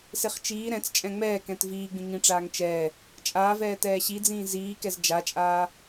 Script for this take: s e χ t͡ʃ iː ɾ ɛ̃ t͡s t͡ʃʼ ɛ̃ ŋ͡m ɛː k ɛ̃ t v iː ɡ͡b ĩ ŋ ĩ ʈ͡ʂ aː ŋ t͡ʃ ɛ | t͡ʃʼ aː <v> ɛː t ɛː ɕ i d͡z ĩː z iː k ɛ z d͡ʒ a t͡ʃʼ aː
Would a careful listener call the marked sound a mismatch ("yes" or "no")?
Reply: no